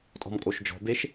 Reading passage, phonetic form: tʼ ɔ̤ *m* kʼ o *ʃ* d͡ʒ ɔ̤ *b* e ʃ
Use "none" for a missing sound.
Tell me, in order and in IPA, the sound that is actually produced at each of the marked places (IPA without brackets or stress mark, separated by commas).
m, ʃ, b